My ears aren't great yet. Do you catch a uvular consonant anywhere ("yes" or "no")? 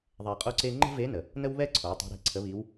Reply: yes